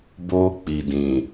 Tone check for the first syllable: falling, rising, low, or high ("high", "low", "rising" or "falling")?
high